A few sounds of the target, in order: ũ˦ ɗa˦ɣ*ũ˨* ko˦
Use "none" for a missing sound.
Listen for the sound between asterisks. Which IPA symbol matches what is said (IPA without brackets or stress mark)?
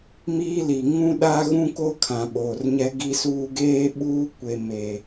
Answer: ũ˦